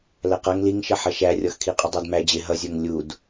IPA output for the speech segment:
l æ q ʌ ŋ l i ŋ ʃ ə ħ ʌ ʃ æ rʲ ɔ x kʰ i qʼ ʊ dˤ æ d m æ d͡ʑ ɪ ɦ ʌ zʲ ə˞ ŋ lʲ u d

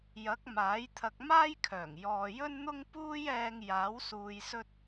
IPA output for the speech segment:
j ɐ˨˥ k̚ m aː˨˥ j t̪ʰ ɐ˧ k̚ m aː˥ j kʰ œː˨˩ ŋ j ɔː˨ j ɵ˥ n n̪ ʊ˥ ŋ p uː˧ j ɛː˨ ŋ j aː˨˥ w s uː˧ j s ɵ˥ t̚

